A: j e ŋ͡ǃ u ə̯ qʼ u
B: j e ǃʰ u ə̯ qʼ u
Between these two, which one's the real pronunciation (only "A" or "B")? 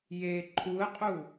B